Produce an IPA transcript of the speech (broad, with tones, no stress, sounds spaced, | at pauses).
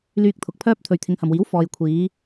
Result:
l yː˧ k̚ t̪ʰ ʊ˨ k̚ pʰ œː˥ p̚ t̪ʰ ɵ˨ ɥ t̪ʰ ɪ˨˧ ŋ h ɐ˨ m w iː˨˥ w f ɔː˨ j kʷʰ iː˨˧